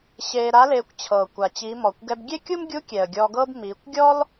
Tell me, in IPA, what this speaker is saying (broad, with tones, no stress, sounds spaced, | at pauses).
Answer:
ɕ eː˧ ɾ a˧˥ l eː˧ kʷ t͡ɕʰ ɤː˩ kʷ a˩ t͡ɕ i˩˧ m ɔ˩ kʷ ɡ ɛ˧ b ɡʲ e˥ kʲ u˥ m ɡʲ u˧˥ kʲ ɛ˩ ə̯ ɡʲ ɔ˧ ɡ ɤ˥ b m iː˩˧ kʷ ɡʲ ɔ˥ l